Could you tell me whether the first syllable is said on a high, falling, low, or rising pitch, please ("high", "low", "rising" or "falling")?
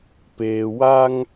low